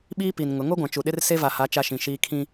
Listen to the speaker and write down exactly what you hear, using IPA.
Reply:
ɓ iː˦ p i˨ n ŋ ʊ˨˦ ŋ o˦ ɡʷ ã˨ t͡ʃ u˨ ɗ ɪ˦ r s e˦ v a˨ h a˨˦ t͡ʃ a˦ ʃ ĩ˨ ʃ iː˦ kʰ ĩ˦

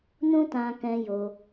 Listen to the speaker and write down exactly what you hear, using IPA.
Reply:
n ũ˦ t ã˧ k ɛ̃˧ j o˧

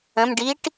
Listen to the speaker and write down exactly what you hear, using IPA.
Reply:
ə̃ m ɖ i ʈ

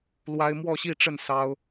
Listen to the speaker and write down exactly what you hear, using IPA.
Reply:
l w a˥ ɪ̯ m w ɔ˥˧ ɕ i˥˧ ʈ͡ʂ ə˥˩ n s ɑ˥ ʊ̯

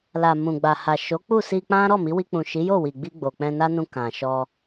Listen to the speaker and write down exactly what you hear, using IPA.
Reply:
l a˨ m ũ˨ ɡ͡b a˨ h a˨ ʃ o˨˦ k͡p u˦˨ s i˧ k͡p ã˦ ɾ ɔ˦˨ m i˨˦ w i˧ k͡p ũ˨ ʃ i˨˦ j o˦˨ w i˨ ɡ͡b i˧ ɡ͡b o˨ k͡p ɛ̃˧ n a˦ n ũ˧ k ã˨ ʃ ɔ˧

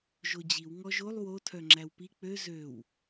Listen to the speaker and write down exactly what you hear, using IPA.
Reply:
ʒ o d͡ʑ i w ŋ ɔ ʒ o lˠ w o tʰ œ ŋ͡ǁ æ w p i k͡p ø z ø w

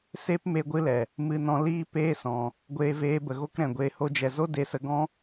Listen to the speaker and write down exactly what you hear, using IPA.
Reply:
s e˦ p m e˦ ɡʷ ɨ˦ l ɛ˨ | m ɨ˧ n ɔ̃˧ l iː˦ p eː˦ s ɔ̃˨ | ɡʷ eː˧ v eː˧ b ə˨ ɣ o˦ k ɾ ɛ̃˨ ɡʷ eː˧ h o˦ d͡ʒ ɛ˧ z o˦ d e˧ s ə˧ ɡ ɔ̃˦

